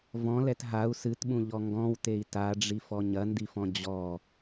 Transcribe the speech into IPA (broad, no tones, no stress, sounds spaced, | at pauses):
v ɔ̃ l ɛ t ɦ a u̯ s ɨ t ɓ ũ ʎ ɔ ŋ ɡ ɔ̃ w t e i̯ t a ɖ͡ʐ i f ɔ ɲ ɐ n d i f ɔ̃ d͡ʑ ɔ